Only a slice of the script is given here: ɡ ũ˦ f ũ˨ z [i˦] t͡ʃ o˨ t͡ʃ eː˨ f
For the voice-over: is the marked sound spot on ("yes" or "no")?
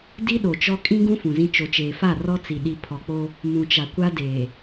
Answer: no